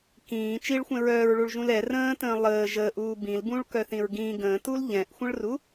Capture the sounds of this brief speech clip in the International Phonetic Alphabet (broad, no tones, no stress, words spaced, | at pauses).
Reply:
kĩː t͡ʃiɭxʷɛ̃ ɹœːɹɭuɭʒũl ɛ rə̃ːtə̃ː lˠəː ʒəːʔuː bĩlbũːɭkœθĩɹ ɡĩ ɡə̃ːtul ʎɛ̃ʔxʷə̃ɭru